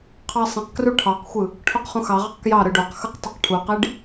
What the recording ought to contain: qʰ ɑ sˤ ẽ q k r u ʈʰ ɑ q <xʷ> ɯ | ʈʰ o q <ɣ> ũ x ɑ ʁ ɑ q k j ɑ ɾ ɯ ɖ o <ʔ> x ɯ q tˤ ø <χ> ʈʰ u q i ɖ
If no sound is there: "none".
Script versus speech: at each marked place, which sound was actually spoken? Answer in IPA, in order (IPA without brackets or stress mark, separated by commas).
xʷ, χ, q, q